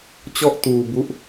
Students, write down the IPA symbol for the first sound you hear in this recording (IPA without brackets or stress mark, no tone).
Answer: t͡ɕ